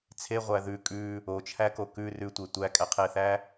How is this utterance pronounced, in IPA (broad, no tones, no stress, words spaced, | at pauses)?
t͡sʰeʁʷæ ðʉ kʼʉ | ot͡ʃʰæko kʉ rʉtʷe tʷækʼæqʰeθæ